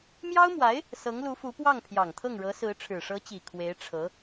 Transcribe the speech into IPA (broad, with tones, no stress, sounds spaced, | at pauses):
m j ɑ˥ ʊ̯ m w a˧˥ ɪ̯ | s ɤ˧˥ ŋ l u˧˥ f u˧˥ p w ɑ˥˩ ŋ pʰ j ɑ˨˩ ŋ t̪ʰ ɤ˥˩ ŋ ɻ ɤ˧˥ s ɹ̩˧˥ ʈ͡ʂʰ ɻ̩˨˩ ʂ ɤ˧˥ t͡ɕ i˨˩ kʰ w e˧˥ ɪ̯ ʈ͡ʂʰ ɤ˧˥